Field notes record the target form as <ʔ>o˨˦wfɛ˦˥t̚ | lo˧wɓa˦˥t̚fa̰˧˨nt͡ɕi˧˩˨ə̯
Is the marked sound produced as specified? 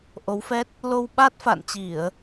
yes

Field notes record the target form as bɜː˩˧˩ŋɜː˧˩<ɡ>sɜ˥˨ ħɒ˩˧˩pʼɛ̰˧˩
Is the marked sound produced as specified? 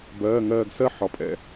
yes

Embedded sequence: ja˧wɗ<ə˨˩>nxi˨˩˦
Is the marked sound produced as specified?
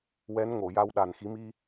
no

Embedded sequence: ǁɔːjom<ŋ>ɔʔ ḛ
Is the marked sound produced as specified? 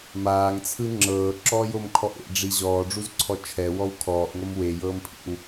no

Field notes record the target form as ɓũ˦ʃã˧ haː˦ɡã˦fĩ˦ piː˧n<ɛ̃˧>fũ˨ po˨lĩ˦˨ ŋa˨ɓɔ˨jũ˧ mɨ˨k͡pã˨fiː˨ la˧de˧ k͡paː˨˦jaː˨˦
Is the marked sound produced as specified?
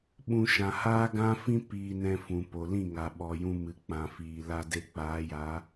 yes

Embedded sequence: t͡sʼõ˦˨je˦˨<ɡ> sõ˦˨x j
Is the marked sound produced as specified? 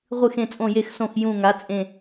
no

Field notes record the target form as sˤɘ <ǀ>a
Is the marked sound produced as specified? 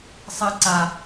yes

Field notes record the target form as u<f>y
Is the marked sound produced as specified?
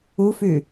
yes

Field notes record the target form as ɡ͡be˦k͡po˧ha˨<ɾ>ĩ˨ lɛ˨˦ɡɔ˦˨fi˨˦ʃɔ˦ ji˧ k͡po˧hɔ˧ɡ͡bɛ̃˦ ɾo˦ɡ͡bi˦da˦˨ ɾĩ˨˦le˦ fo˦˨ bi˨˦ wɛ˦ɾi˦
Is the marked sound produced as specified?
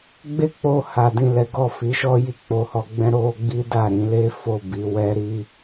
no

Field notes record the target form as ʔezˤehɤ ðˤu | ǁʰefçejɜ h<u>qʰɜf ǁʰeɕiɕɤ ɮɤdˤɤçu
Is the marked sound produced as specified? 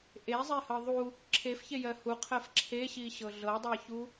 yes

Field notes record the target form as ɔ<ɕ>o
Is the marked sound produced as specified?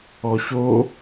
yes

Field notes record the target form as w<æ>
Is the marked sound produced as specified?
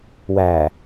yes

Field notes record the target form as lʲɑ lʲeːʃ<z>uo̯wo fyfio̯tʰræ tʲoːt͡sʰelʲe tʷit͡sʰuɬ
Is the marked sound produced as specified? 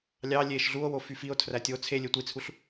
no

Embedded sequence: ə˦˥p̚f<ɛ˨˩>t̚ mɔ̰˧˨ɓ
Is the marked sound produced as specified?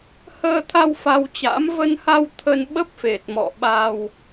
no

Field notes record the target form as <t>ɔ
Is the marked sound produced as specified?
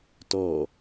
yes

